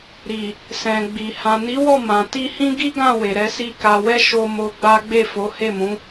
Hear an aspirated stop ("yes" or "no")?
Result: no